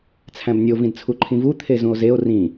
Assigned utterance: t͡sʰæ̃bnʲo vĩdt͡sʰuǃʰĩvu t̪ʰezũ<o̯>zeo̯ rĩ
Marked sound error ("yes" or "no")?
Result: no